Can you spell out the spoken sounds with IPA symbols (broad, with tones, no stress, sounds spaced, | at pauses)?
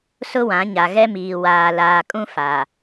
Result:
s ʊ˦ w ã˨˦ ɲ a˨ ɣ ɛ˦ m iː˨ w aː˨ l aː˨ kʼ ũ˦ f a˨